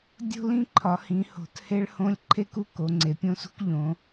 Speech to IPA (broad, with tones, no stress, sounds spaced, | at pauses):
dʲ o̤˥ l ĩ˥ ǃʰ ɒ˩˧ h ĩ˩˧ h o̤˩˧ t h e˥ ɭ h õ˥ lʲ ǃʰ e˥ k u˥ k o˩˧ ŋ͡ǀ e˩˧ pʲ õ˥ s ṳ˥ k ʎ õ˩˧